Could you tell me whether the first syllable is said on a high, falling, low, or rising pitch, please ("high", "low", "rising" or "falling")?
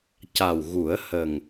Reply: low